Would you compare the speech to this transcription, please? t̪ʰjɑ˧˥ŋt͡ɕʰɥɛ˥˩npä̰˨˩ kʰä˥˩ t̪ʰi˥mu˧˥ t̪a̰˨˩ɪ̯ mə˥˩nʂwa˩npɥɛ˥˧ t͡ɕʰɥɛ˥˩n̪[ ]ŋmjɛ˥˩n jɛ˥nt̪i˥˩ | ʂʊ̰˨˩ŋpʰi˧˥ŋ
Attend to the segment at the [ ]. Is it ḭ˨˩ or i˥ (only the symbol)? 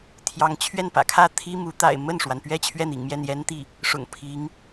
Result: ḭ˨˩